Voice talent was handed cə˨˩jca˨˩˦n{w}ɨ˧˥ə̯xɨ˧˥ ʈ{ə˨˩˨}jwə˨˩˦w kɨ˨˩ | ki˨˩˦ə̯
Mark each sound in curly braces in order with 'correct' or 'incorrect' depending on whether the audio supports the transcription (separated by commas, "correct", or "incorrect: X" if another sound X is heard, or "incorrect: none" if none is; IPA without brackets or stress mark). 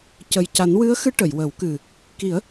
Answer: correct, correct